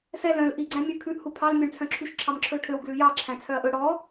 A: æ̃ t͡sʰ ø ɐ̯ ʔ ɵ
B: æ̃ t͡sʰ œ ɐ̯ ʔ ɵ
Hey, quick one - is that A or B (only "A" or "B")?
B